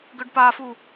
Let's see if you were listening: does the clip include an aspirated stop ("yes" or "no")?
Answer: no